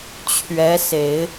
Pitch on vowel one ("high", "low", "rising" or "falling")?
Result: rising